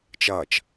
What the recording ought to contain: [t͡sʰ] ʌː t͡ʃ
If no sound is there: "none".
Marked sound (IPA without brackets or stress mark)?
t͡ʃ